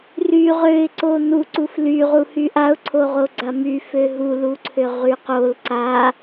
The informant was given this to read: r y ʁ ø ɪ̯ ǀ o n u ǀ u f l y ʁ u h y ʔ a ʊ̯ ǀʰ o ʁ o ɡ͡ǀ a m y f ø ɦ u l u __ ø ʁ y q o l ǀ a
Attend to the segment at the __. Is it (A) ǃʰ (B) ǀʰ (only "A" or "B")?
B